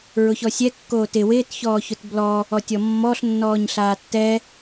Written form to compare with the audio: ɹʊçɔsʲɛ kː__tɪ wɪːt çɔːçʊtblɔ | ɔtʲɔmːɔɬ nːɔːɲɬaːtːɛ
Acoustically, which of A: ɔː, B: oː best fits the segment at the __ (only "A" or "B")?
B